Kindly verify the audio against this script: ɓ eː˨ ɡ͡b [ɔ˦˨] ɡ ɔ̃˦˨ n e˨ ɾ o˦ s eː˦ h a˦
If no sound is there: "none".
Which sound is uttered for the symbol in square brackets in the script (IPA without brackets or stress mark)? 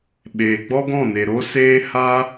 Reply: ɔ˦